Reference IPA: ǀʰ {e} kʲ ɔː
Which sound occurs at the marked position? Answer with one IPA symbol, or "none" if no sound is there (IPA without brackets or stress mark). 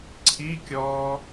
i